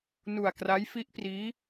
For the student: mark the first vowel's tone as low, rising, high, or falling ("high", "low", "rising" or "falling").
low